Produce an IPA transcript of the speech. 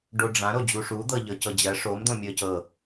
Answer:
ɖ o ɖ͡ʐ ã ɾ o d͡ʑ u ʂ u d̪ ɤ ʎ ɤ c ɤ d͡ʑ ɜ ʂ o m d̪ õ mʲ ɤ c ɤ

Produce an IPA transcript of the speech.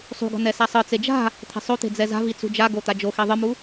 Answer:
sˤ ṳ ɡ ɔ̤ n̪ ɛ s a sˤ ɯ t͡s e d͡ʒ a̤ | t̪ʰ e̤ sˤ o t̪ e̤ d͡z ɛ z a̤ v i t͡s ṳ d͡ʒ a ɡ o t̪ a d͡ʒ o x i ðˤ ɯ m u

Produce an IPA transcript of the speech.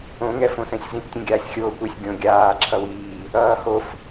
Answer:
õ ŋ ɛ f õ s ɛ̃ sʲ z ĩ p tʲ ẽ ɡʲ aː sʲ xʲ oː kʷ e sʲ ɡʲ õ ɡʲ aː ǁʰ ʌ w iː | ʌː h o f

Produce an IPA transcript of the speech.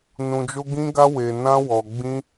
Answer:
n ũ˧ d͡ʒ o˦ ɡ ĩ˦ ɡ a˦ w e˧ n ã˦ w ɔ˧ ɡ͡b ĩ˦

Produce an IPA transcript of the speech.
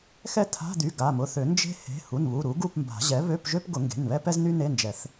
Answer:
x ɛ˥˧ t̪ʰ a̤˧˥˧ d̪ y˩˧˩ ɡ a˩˧˩ m ʊ˩˧˩ θ ø˨˩˦ n d͡ʒ e̤˥ h e̤˩˧˩ h u˩˧˩ n β u˩˧˩ ɾ u˩˥ ɡ u˥˧ p m b a̤˨˩˦ ʑ ɛ˩˥ β ø˧˥˧ p ʒ ø˥ p ɡ ʊ˨˩˦ ŋ ɡ e̤˩˧˩ n β ɛ˥ p ɛ˥ z n y˥ n e˧˥˧ n d͡ʒ ɛ˨˩˦ θ

